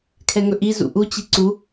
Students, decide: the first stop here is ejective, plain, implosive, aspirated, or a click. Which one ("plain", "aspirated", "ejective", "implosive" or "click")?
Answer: aspirated